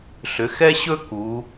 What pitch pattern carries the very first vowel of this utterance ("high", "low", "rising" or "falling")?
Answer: rising